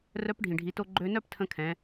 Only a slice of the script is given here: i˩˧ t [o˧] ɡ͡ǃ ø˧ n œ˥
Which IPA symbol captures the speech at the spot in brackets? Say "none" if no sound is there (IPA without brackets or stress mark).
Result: o˧